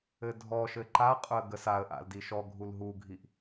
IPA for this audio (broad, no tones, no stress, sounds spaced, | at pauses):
ɘ dʱ ɔ ʃ ɘ ǃ a qʼ ʊ ə̯ ɡ ə s a ə̯ ʔ a̰ l d i ʃ ɔ ɡʱ u l ɦ u ɡʱ i ʔ